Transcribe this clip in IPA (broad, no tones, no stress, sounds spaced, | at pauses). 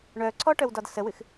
ɳ œ ǀʰ ɔ ʈ œ w d ɒ d s ə w ɨ x